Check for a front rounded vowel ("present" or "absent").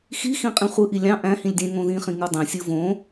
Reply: absent